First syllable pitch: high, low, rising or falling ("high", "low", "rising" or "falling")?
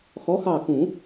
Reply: rising